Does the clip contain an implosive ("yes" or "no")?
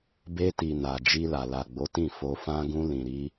no